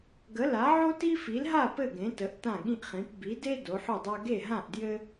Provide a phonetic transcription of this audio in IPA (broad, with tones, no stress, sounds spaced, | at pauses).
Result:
ɡ ə˨˥ l a˨˥ ʕ o˥ t i˥ f i˨˥ l ɦ a˥˨ p ɘ˥˨ ɡ ẽ˨˥ t ə˨˥ ʔ t ã˥˨ ɠ ĩ˥ ʔ χ ĩ˨˥ p b i˨˥ d e˥ d o˨˥ ħ o˥˨ dˤ a˥ ɡ e˥˨ ɦ ã˥˨ ʔ d j ɘ˥